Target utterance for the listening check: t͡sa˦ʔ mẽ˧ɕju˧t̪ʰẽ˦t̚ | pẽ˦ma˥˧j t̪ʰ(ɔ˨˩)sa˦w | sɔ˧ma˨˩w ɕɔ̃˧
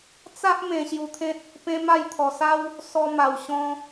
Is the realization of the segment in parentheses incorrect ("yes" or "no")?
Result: no